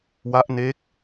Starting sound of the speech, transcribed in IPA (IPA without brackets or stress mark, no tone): w